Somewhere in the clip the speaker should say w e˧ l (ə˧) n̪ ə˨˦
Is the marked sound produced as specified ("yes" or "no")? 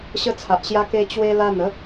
no